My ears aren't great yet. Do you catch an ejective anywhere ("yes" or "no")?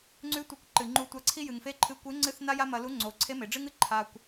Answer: no